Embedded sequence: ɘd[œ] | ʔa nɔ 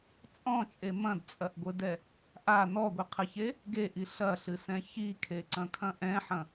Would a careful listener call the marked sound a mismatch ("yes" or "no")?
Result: yes